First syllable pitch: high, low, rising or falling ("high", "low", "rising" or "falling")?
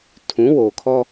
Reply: rising